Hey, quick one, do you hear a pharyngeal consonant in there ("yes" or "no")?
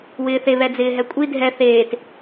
no